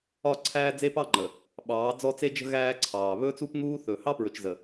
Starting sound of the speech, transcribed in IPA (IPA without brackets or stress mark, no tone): ɒ